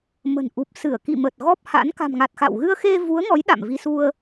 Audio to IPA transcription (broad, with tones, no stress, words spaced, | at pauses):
mə̤˨˩nʔu˨˩p̚ sɨ˧˩ə̯kḭ˧˨mə˨˩t̚ ɣɔ˦˥p̚ha̰˧˥n ka̤˨˩mŋa˨˩t̚ xa̰˧˨w ɣɨ˧ə̯xe˧ vu˨˦ə̯ŋɔ˨˦j ɗa̰˧˨mvi˧su˧ə̯